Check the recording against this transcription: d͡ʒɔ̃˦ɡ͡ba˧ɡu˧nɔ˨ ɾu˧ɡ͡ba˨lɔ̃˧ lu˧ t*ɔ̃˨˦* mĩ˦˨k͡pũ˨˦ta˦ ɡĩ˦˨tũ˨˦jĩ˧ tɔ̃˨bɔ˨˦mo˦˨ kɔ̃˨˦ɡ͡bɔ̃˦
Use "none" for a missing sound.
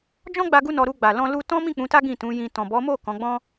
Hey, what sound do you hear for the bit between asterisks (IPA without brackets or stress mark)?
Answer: ɔ̃˦